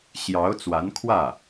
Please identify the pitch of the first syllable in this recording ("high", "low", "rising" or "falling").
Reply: rising